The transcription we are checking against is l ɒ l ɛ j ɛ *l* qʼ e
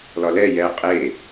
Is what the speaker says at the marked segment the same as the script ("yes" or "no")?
no